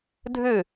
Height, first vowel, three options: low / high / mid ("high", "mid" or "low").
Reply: high